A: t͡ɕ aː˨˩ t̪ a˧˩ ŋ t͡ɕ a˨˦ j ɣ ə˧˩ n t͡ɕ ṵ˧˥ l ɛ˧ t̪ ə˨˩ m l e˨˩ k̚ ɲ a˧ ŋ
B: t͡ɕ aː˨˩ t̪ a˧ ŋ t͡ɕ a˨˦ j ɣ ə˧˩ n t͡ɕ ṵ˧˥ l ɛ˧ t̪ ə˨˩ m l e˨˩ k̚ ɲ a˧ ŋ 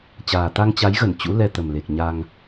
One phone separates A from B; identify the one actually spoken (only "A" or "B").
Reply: B